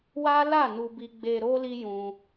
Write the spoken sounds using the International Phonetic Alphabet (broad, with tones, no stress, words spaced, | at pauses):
wa˦la˦˨ nu˧bi˧ ɡ͡be˨ɾo˧ li˦jũ˧